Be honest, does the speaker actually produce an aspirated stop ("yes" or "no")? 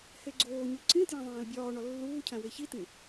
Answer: yes